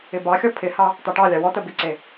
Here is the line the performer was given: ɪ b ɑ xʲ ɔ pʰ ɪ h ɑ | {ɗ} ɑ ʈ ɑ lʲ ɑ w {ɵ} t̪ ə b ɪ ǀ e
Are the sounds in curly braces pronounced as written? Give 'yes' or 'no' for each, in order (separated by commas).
no, no